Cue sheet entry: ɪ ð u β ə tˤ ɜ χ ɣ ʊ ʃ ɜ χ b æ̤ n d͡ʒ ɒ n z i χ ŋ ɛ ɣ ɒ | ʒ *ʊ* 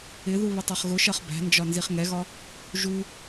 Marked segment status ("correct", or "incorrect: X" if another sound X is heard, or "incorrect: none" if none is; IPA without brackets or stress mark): incorrect: u